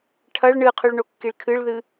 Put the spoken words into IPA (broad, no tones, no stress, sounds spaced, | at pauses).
ʈʰ ɐ ɭ ɳ ɨ qʰ ʉ ɭ ɳ o kː i ɭ kʰ ɨ ɭ ð ɨ